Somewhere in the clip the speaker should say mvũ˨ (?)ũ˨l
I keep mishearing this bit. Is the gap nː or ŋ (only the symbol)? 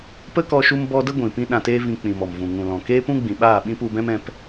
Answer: ŋ